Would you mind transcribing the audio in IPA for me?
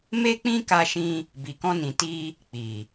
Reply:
m e˦ k͡p ĩ˦ k a˧ ʃ ĩ˧ | b i˨ k ɔ̃˧ n ĩ˨ t i˧ | k͡p i˨

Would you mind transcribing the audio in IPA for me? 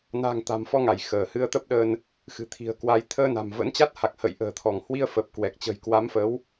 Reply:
n a̤˨˩ ŋ t̪ a̤˨˩ m f ɔ˧ ŋ a˧˩ j x əː˧˩ h ɨ˧ ə̯ t̪ ə˦˥ p̚ ɗ əː˧ n | x ɨ̤˨˩ t̪ʰ i̤˨˩ ə̯ k w a˨˦ j t̪ʰ əː˧ n a̤˨˩ m v ə̰˧˥ n t͡ɕ a˦˥ t̚ h a˨˩ k̚ h ə̰˧˨ j ʔ ə̤ː˨˩ t̪ʰ ɔ˧˩ ŋ h w i˧ ə̯ f ə˨˩ p̚ k w ɛ˨˩ k̚ t͡ɕ ə̤˨˩ j k w a˨˦ m f əː˨˦ w

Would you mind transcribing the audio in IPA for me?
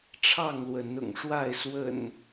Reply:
ʈ͡ʂʰ ɑ˥˨ ŋ l w ə˨˦ n ʊ̰˨˩ ŋ ʂ w a˥˨ ɪ̯ s w ə̰˨˩ n

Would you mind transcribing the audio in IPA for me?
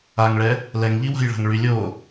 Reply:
a ŋ ɭ ɛ | l ɛ ŋ ʎ i w a̤ j ɭ a̤ ŋ ɭ y lʲ o

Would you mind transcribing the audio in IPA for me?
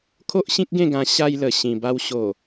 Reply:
kʰ o˦ ʔ ɕ ĩ˦ k̚ ɡ ẽ˥˧ ɡ ã˧ ɕ a˧ j l ə˨˩ ɕ ĩ˨˩ b a˧ w ɕ o˨˩

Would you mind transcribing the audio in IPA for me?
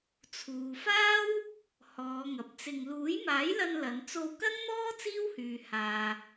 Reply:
t͡sʰ uː˨ f aː˥ w | h ɔː˨˧ ŋ ɐ˨ p̚ t͡s ɪ˧ ŋ l uː˨˥ j m aː˨˥ j l ɐ˧ n l ɐ˨˧ n t͡s o˧ w k ɐ˥ ŋ n̪ ɔː˥ t͡s iː˥ w h yː˨ h aː˨

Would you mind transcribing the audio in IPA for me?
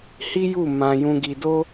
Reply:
h i˦ j u˦˨ m ã˧ j ũ˧ ɡ i˧ d o˦

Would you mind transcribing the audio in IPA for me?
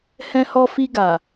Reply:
h ɛ̃˧ h ɔ˧ f i˧ ɡ a˨

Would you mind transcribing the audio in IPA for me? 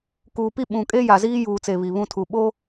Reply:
k uː˨ p i˦ ɓ ũ˨ kʼ e˦ j a˨ z iː˦ j uː˨ t͡s e˨ β i˨ β ũ˦ tʰ u˨ ɓ o˦

